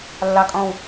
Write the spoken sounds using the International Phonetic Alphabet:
lː ɑ˥˧ kʼ ɔ̃˥˧ w

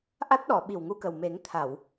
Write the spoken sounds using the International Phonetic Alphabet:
ʔ a˦˥ t̚ ɗ ɔ˨˩˨ ɓ i˨˩ w ŋ u˧ k ə˨˩ w m e˨˩˦ ŋ t̪ʰ a˨˩˨ w

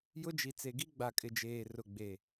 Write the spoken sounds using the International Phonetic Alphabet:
j ʊ˦ d͡ʒ i˨ t͡s e˨ ɡ i˦ ɡ͡b a˨ kʼ ɪ˨ d͡ʒ eː˨ r ʊ˨ ɡ͡b e˨

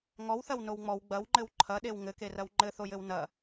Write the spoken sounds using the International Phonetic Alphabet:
ŋ ɔ w θ ɐ w n o w ŋ͡m ɔ w ɡ͡b ɐ w ŋ͡ǃ ɘ w ǃʰ ɐ ɗ e w ŋ ɘ k e r ɐ w ŋ͡ǃ ɘ θ o j ɘ w n ɐ

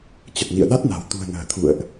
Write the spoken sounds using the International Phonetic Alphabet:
t͡ɕ ə˨˩ t̚ n ḭ˧˨ ə̯ ɗ a˦˥ t̚ n a̤˨˩ w t̪ ṳ˨˩ ə̯ n ə̤ː˨˩ t̪ʰ ṵ˧˨ ə̯ ʔ

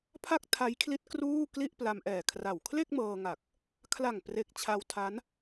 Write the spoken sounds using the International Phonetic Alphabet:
pʰ a˥˩ k̚ tʰ a˦˥ j kʰ l i˦˥ t̚ k r uː˥˩ k l i˥˩ ʔ p l a˧ m ʔ ɛː˨˩ kʰ r a˨˩ w kʰ l e˥˩ k̚ m ɤː˧ ŋ a˨˩ k̚ | kʰ l a˨˩ ŋ p r e˨˩ k̚ t͡ɕʰ a˧ w tʰ a˦˥ n

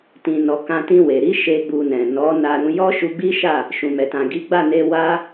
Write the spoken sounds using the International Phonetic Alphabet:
t ĩ˨ n ɔ˨ k ã˧ t ĩ˧ w e˨ ɾ i˨˦ ʃ e˦ ɡ͡b u˧ n ɛ̃˨ n ɔ˨˦ n a˧ ɾ ũ˧ j ɔ˦ ʃ u˧ ɡ͡b i˦ ʃ a˦˨ | ʃ ũ˨ m ɛ˨ t ã˨ ɡ i˨˦ ɡ͡b a˦˨ n e˧ w a˦

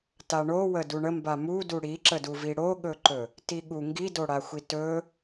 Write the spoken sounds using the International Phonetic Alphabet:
t a ɳ o w ə d u ɳ ə m b a m u d u ɽ i ǁ ə d u v i ɽ o ɠ ɵ ǃ ɵ | t i ɠ u ŋ ɡ i d o ɽ a xʷ i t ɵ

